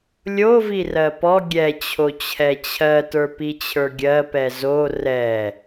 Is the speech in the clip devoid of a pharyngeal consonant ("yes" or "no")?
yes